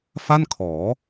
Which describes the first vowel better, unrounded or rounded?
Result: unrounded